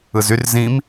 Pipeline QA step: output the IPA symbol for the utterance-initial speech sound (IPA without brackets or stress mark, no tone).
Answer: ɯ